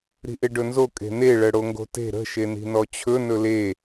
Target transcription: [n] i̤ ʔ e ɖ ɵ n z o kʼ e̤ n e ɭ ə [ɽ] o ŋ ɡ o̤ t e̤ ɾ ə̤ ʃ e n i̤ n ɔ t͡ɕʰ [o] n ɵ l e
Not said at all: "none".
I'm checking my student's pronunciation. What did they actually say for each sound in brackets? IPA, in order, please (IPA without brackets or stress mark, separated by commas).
ɾ, ɽ, ɵ